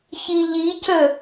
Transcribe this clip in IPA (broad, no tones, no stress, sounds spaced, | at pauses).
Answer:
ç i ʎ i c ə